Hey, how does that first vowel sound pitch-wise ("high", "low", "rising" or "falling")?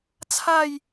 falling